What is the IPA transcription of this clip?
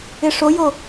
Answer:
ɪʂojo

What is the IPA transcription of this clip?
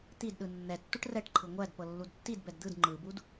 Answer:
t̪id ɗɯnːɛtːuʈ rɛʈǃʰɯ ŋʷæd pɤlːudtːidbɛd d̪ɯd ŋ͡ǃɯbud

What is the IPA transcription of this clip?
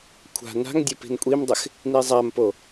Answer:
kʷʰa̤ na̤ŋdʲʊ pi̤nkʷʼimdˤɪx | nizˤampo

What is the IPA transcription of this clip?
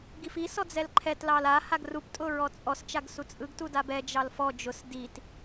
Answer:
ɡifi sɔd͡zɛlǃʰɛt lɑla haɡrup tʼʊɹɔt͡sʼɔs t͡ʃaɡsut͡sʼɯɡ tudabɛ d͡ʒɑlfɔ d͡ʒʊs dit

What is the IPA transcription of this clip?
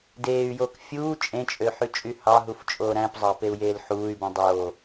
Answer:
deːy̯joːk fʲuː t͡ʃʼẽt͡ʃʼø ħyt͡ʃʼyhɑɦuf t͡ʃʼoːɾæ̃pzˤɑ peu̯jeːlħuːy̯bũ dˤoː

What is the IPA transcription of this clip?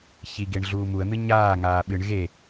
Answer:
çiɡeɳ ɮuːmuə̯n̪ɨ ɲaːŋaː ɓɨɳ ɣe

